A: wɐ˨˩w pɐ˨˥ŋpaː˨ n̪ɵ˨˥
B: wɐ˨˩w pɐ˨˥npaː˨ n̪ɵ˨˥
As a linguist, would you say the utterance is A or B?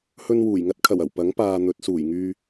A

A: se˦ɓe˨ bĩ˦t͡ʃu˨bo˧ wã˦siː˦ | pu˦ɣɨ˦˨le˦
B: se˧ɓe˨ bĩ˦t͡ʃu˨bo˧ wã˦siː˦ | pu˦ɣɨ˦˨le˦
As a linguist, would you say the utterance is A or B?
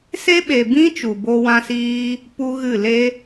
A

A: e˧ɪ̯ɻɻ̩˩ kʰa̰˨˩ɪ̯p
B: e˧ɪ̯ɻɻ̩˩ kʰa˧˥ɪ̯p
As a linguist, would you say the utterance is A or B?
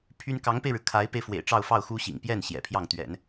B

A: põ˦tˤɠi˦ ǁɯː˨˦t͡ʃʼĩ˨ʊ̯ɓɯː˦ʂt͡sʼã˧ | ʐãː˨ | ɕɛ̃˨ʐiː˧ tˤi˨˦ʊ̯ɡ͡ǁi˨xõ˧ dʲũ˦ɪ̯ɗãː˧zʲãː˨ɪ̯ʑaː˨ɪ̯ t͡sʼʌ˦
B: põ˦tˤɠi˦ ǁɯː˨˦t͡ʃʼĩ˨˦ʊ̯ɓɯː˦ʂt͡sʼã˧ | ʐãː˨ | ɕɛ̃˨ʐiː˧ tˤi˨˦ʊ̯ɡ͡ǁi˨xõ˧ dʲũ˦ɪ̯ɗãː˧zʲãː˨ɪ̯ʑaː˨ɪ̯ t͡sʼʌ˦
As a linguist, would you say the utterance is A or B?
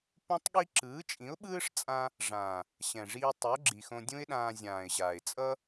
B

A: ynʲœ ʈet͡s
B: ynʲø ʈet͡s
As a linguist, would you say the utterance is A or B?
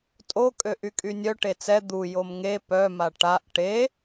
A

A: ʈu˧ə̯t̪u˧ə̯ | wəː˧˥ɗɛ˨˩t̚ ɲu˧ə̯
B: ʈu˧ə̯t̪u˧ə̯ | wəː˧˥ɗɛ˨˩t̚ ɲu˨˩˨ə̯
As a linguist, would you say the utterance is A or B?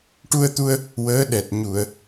B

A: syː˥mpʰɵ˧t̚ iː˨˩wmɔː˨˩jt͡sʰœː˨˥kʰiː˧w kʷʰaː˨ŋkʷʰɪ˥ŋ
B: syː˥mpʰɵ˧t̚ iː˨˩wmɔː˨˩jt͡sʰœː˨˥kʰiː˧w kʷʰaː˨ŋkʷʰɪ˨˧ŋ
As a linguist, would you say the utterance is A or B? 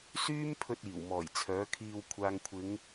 B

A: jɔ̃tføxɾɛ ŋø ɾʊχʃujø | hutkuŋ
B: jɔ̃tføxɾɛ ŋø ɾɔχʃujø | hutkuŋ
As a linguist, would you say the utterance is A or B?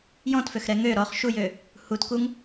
B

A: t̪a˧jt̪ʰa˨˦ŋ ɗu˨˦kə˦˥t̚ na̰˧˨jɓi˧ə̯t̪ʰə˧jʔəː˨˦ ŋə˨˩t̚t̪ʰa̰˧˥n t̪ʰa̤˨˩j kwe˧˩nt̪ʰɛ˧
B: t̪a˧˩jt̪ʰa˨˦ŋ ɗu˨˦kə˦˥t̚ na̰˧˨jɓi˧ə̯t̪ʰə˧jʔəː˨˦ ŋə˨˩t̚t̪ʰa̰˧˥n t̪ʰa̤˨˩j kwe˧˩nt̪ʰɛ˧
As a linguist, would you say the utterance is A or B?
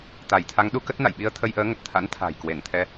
B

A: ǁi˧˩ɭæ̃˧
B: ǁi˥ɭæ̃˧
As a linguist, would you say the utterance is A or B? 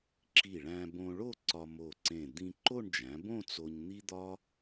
A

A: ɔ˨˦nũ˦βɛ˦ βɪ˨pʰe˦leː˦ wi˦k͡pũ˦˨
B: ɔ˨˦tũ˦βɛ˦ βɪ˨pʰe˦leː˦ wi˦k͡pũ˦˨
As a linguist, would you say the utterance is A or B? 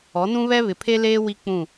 A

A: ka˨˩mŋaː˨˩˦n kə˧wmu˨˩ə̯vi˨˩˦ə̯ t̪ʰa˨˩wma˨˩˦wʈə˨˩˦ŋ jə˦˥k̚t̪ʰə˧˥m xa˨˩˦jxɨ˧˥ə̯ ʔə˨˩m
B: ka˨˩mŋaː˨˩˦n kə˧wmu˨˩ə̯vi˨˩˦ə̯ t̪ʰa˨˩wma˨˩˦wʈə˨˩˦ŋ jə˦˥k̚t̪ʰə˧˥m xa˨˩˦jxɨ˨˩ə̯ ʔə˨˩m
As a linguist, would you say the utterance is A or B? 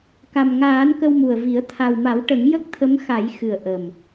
B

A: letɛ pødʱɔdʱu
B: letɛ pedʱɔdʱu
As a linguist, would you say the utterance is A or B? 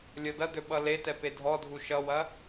B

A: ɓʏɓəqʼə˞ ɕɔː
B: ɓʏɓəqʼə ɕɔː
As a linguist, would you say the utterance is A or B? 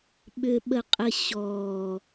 B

